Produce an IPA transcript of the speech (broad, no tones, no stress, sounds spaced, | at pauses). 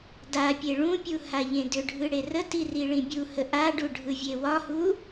d a pʲ e ɭ ũ pʲ u h a ʎ ẽ d ʏ ɖʱ ɯ ɽ e r ə t i r i ɭ ĩ bʲ u h ə ʔ a ɖ u ɖʱ ɯ vʲ e w ɒ h u